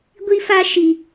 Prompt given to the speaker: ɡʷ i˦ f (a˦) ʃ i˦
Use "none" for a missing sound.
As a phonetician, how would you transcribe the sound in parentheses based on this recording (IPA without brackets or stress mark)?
a˦